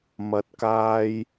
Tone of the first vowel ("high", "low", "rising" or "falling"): rising